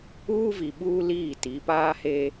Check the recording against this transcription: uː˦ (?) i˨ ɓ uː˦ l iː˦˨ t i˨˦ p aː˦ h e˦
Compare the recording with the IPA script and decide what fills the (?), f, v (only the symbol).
v